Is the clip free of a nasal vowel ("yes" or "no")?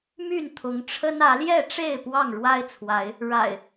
yes